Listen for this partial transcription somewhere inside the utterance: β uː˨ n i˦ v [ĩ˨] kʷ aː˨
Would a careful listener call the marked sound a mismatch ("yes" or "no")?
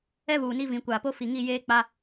no